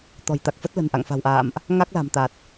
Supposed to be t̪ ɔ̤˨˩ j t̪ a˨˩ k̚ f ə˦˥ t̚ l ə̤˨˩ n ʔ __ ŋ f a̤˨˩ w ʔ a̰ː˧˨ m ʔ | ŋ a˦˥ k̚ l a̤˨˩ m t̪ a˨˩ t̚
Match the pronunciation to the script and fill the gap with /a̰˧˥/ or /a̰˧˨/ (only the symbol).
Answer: a̰˧˨